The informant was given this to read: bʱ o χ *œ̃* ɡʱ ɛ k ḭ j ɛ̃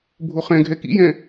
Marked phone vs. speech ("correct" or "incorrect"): incorrect